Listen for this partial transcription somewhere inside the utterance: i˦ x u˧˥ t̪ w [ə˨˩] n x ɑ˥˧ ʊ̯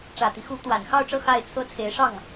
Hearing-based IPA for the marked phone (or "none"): a˨˩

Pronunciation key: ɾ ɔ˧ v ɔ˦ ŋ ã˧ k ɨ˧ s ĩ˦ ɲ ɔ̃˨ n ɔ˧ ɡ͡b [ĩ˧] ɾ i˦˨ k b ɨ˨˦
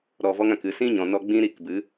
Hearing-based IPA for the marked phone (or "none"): ĩ˦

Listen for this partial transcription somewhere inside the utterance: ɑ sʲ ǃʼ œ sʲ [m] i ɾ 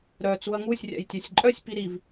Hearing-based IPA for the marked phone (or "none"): p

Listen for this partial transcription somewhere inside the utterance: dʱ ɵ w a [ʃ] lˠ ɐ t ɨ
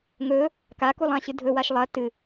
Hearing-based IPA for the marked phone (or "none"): ʃ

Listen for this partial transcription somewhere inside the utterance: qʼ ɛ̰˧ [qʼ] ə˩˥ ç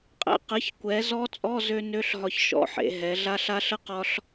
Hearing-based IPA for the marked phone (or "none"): q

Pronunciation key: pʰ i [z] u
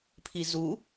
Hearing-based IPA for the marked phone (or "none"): z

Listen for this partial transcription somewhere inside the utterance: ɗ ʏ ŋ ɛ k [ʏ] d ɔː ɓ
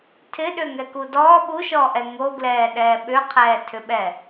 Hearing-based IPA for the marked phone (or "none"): u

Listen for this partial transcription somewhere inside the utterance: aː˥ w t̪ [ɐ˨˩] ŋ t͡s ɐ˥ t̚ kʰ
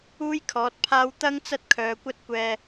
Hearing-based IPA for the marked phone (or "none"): ɐ˥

